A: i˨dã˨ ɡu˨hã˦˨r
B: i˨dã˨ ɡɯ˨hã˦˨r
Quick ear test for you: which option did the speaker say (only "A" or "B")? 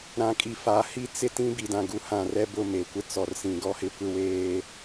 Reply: A